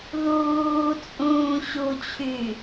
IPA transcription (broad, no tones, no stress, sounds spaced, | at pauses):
ð uː t͡sʼ ũː ɕ u t͡ɕʰ y